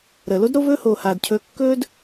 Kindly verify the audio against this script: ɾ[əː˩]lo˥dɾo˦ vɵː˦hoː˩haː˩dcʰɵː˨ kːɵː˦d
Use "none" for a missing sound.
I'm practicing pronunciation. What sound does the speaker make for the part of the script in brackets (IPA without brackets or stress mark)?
əː˩